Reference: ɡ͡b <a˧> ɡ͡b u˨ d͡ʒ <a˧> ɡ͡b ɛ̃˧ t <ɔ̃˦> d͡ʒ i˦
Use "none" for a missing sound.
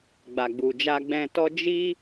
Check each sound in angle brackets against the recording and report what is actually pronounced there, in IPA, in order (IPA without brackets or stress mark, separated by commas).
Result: a˨, a˧, ɔ˦